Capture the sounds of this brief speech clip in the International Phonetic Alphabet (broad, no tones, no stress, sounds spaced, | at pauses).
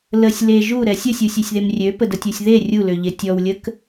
l ə sʲ l e ʒ u ɾ ɛ sʲ ə sʲ u sʲ ø sʲ ð e m rʲ ø p ə d ə tʲ u sʲ ð e rʲ u l ø ʎ e tʲ ɔ w lʲ ə k